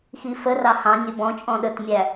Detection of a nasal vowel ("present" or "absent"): present